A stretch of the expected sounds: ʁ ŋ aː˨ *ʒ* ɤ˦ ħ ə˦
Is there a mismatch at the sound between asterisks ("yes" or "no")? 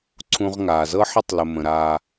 yes